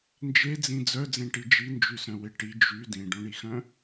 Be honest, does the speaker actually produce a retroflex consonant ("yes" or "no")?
yes